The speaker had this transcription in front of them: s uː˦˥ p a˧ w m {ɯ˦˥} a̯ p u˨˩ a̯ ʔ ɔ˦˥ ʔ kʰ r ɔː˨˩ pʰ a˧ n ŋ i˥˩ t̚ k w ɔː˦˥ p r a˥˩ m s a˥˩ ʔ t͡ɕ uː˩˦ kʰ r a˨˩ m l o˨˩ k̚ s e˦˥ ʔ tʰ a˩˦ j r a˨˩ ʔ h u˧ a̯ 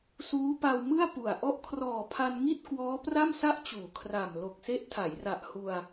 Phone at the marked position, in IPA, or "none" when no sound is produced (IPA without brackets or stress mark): ɯ˥˩